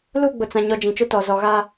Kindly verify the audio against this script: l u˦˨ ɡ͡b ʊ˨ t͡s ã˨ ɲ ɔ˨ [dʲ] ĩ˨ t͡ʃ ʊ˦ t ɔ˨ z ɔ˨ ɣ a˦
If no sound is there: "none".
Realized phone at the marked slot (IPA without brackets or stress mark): d͡ʒ